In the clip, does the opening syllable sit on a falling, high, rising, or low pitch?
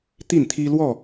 falling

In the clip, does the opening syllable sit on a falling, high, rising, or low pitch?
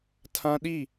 high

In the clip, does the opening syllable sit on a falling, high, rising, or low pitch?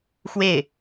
falling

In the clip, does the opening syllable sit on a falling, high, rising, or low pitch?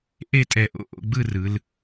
falling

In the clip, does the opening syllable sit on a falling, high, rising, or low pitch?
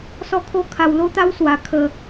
high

